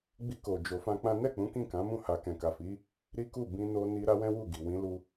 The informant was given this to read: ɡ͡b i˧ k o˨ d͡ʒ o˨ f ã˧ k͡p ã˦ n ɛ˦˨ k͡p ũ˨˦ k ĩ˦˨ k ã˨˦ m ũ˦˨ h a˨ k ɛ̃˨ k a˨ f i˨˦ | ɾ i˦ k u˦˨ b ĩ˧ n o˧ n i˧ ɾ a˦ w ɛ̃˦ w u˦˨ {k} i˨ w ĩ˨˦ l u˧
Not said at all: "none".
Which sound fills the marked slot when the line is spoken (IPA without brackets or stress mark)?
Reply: ɡ